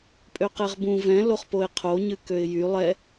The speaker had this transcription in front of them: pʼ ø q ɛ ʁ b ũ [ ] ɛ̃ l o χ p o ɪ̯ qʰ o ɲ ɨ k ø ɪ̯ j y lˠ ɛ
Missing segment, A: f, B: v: B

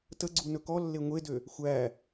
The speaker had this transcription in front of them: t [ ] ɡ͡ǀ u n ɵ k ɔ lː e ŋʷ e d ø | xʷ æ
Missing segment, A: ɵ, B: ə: B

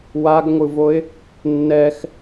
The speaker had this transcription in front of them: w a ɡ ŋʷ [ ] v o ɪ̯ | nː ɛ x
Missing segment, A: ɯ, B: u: A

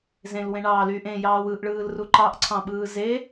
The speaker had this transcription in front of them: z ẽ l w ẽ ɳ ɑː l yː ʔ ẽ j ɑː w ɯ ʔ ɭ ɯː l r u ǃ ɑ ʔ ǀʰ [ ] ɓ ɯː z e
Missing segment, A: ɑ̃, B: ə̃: A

